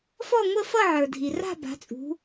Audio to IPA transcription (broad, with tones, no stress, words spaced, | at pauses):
fɔ˥˧ŋʷə˥˧fʌ˥˧ ʕə˞˩dʱi˩ra̤˥˧ ba̤˩˧t͡sʼṳ˩˧